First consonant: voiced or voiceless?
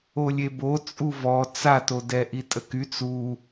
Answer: voiced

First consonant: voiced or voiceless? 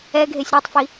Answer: voiced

